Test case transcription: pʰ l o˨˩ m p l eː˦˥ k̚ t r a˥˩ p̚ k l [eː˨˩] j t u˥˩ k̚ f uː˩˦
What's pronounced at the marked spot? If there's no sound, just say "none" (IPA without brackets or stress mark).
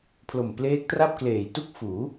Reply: eː˨˩